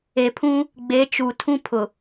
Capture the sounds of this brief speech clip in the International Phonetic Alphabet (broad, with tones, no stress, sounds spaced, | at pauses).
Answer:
e˨ pʰ ũ˦ | ɡ͡b e˨˦ t͡ʃ u˨ tʰ ũ˦ pʰ ʊ˨